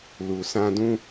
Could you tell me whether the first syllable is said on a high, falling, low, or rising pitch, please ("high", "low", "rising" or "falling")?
low